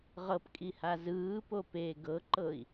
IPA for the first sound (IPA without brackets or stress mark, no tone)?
ʁ